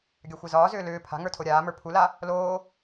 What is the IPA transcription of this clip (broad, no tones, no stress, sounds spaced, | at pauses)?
ɡʲ a xʷ ɛ z ɒː z ʏː l ʏː pʰ a̤ ŋ ə˞ tʰ o ɾʲ aː m ə˞ pʰ u l a | l oː